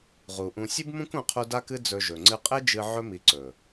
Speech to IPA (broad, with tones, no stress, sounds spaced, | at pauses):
ʁ u˨ ʔ ũ˧ sʲ ɨ˦ b m ũ˦ k ũ˧ qʰ u˧ d a˦ k ɨ˦ d͡z ɵ˧ ʒ ɵ˨ ŋ͡ǀ ɨ˧ qʼ e˦ d͡ʒ ɨ˧ ʕ ɵ˦ m i˧ ǀ ɵ˨